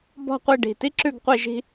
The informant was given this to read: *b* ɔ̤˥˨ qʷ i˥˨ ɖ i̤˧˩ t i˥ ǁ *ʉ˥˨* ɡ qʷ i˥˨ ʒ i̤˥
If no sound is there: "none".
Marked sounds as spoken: b, ʉ˥˨

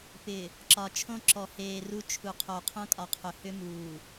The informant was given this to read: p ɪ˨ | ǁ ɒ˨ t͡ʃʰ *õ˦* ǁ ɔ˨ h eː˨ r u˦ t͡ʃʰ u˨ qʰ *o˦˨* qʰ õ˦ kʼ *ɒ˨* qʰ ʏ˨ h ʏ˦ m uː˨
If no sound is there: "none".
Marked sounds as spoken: õ˦, o˨, ɒ˨

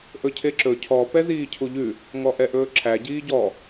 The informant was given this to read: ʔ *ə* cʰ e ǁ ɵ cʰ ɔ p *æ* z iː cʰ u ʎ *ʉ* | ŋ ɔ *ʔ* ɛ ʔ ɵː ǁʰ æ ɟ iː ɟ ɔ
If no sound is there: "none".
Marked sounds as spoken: ɵ, ɛ, ʉ, ʔ

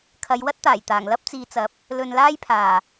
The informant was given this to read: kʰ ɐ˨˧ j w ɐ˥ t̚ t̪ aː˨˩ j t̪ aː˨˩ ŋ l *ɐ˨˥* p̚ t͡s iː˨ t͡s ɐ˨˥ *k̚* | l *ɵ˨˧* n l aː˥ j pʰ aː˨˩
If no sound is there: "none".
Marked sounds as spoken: ɐ˥, p̚, ɵ˧

